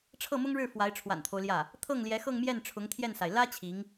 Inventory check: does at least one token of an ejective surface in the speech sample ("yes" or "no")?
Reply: no